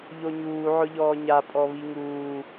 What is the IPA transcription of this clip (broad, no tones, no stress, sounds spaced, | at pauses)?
ʎ o ɲ uː ʕ ʊ ʎ ɔː ɲ a pʼ ɔ β i ŋ uː